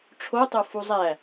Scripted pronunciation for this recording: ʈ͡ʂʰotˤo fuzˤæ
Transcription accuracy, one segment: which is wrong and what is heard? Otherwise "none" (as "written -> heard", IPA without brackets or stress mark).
none